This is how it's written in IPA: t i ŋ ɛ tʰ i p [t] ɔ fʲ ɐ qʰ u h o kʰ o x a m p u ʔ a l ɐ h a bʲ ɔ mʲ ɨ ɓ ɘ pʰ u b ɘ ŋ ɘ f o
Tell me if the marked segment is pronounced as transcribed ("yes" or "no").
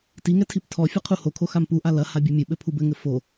no